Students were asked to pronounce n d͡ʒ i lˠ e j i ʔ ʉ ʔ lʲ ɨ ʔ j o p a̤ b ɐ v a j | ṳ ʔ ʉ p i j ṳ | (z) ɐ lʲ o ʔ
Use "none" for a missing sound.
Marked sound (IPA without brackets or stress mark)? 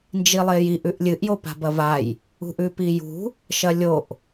ʃ